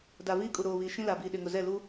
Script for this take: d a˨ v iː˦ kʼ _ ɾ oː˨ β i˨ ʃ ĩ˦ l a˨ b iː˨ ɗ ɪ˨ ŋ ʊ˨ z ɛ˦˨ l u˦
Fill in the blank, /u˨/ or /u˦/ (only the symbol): u˨